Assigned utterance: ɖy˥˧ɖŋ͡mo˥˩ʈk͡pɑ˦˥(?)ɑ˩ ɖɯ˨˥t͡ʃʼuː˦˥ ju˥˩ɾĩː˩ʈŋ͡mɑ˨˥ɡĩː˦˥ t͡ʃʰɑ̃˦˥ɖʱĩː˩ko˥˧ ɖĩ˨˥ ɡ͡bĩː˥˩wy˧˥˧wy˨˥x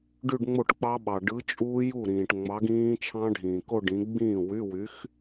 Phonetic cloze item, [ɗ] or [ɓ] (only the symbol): ɓ